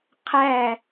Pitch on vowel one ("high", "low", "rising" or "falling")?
falling